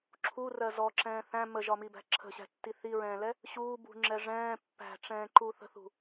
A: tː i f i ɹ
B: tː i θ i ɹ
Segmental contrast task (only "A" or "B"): B